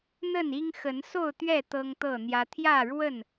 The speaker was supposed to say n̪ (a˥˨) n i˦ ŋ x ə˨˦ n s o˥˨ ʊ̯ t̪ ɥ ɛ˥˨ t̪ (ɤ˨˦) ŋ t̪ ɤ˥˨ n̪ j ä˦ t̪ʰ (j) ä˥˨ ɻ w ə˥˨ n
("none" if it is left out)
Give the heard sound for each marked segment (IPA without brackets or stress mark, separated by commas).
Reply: ə˥˨, ɤ˦, j